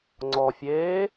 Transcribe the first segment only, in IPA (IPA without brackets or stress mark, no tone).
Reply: ŋ͡ǀ